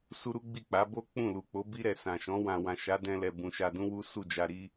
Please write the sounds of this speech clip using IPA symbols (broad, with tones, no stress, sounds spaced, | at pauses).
s u˦ ɾ u˦ ɡ͡b i˦˨ k͡p a˨˦ b o˦ k͡p ũ˦˨ l u˨ k͡p o˨˦ b i˦ ɾ ɛ˧ s ã˨ ʃ ɔ̃˨˦ w ã˧ w ã˨ ʃ a˨˦ d ɛ̃˧ l ɛ˨ b ũ˨ ʃ a˧ d ũ˦ w u˦ s u˦˨ d͡ʒ a˧ ɾ i˦